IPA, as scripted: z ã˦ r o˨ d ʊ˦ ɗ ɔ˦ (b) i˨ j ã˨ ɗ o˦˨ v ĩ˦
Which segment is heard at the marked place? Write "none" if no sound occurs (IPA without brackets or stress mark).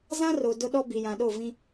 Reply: b